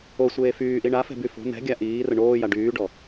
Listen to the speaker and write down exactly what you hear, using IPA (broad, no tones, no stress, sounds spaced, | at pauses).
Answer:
o sʷ eː f yː ʔ i ɳ a f ɛ̤ b y f o̤ n̪ ɛ̤ ɡʲ a ʔ iː r ə ɳ oː j a ɖ yː ɖ ɔ